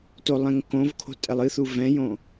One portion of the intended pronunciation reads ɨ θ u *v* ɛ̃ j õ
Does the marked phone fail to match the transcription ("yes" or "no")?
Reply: no